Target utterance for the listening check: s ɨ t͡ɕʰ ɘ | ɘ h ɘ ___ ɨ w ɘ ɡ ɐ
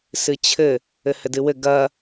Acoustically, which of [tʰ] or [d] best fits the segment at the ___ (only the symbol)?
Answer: d